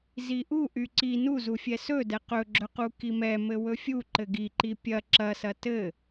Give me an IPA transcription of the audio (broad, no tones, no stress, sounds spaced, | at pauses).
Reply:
z i ʔ u ʔ y ǀ i n u z u fʲ ɛ s ɵ d ɛ q ɵ ɡ͡ǁ ɵ q u k i m ɛ m ɘ w ɵ fʲ u ǃ ɘ ɡ i ǃ i pʲ ɐ ǁ ɐ s ɐ t ɘ